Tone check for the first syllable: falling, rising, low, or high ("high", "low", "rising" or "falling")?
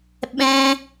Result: high